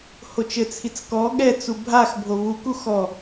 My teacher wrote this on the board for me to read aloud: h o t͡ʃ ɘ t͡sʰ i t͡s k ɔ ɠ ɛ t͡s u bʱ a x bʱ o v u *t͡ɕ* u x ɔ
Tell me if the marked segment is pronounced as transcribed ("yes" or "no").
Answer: no